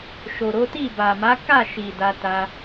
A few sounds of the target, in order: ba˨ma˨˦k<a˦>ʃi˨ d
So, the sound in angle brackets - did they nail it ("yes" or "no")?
no